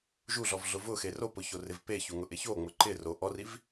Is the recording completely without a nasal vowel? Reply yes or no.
yes